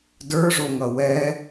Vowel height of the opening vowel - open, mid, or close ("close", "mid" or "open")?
mid